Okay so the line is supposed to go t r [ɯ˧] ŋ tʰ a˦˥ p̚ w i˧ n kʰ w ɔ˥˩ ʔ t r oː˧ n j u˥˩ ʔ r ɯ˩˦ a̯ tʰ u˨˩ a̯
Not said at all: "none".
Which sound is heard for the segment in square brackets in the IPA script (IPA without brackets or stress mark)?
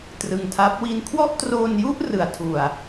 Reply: ɯ˧